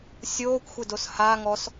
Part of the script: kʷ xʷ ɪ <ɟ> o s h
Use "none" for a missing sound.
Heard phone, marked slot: d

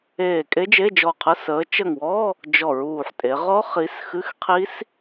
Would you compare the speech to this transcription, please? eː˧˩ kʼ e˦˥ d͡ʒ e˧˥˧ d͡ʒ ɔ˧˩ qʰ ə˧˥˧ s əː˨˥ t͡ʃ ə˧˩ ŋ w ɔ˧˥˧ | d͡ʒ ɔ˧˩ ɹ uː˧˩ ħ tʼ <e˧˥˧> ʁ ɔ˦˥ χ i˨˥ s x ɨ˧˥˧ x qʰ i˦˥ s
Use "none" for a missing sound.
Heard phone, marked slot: e˩˧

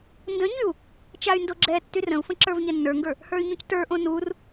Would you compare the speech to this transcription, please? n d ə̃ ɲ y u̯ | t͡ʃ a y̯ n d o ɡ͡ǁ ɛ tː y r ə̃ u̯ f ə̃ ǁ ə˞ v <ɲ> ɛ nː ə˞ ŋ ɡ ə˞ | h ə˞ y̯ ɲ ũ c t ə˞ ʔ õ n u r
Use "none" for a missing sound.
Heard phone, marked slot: ɲ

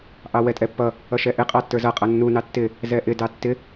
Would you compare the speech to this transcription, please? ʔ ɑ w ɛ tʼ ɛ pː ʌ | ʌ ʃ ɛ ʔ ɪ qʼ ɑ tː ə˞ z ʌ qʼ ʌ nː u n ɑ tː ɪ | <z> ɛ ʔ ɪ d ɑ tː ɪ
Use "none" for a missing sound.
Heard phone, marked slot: z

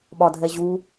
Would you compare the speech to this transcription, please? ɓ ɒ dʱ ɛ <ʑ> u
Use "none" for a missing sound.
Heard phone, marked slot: ʑ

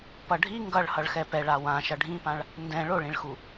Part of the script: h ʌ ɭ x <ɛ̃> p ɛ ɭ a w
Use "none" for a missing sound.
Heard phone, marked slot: ɛ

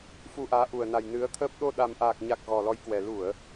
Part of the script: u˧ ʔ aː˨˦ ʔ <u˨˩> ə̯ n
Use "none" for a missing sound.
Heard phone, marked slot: u˨˩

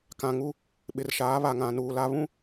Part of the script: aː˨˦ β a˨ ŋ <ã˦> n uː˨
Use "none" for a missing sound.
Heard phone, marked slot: ã˨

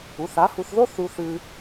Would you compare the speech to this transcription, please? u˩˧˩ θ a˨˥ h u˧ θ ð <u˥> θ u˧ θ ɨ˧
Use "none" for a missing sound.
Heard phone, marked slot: o˥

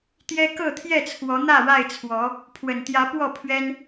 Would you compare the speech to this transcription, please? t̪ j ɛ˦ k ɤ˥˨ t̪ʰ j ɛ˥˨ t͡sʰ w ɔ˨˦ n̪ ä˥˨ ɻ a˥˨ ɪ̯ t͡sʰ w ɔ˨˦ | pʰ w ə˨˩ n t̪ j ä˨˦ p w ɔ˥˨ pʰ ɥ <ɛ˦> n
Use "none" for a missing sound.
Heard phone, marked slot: ɛ˦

